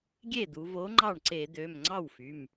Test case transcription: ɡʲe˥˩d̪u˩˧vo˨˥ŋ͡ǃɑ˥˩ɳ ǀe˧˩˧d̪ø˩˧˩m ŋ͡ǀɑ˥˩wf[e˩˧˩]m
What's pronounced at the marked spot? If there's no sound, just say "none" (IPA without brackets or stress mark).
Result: y˩˧˩